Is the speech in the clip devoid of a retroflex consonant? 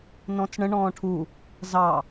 no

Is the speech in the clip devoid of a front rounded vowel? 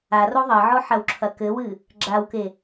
yes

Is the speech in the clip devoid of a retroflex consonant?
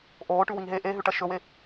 no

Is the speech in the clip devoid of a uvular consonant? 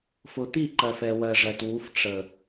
yes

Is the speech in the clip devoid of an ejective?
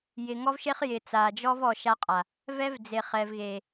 no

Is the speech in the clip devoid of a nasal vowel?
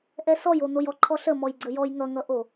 yes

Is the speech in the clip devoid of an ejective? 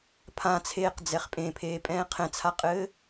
no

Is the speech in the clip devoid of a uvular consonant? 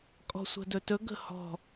yes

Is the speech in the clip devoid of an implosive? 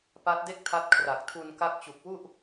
yes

